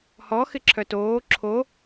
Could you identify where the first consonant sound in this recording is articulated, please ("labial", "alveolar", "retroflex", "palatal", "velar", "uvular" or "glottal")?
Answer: glottal